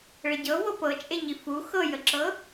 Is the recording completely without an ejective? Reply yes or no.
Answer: no